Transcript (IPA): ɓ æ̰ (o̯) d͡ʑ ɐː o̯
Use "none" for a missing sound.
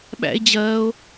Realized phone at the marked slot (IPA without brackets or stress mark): e̯